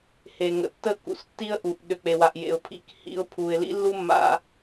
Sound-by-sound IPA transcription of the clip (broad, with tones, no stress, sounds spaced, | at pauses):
h e˨ ŋ ə̰˨ tː ə˦˨ k ṵ˨ s tː i˦ ə̯ ʔ u˨ ʔ ɗ ʏ˨ k͡p e˨ w a˨ ʔ j ḛ˨ ʊ̯ pʰ ḭ˦ k h ḭ˧ ʊ̯ pʰ u˨ ɪ̯ l ḭ˦ lː u˦ mː a̰˧